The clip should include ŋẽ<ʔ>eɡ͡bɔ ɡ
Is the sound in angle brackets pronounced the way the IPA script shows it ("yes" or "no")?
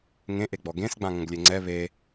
yes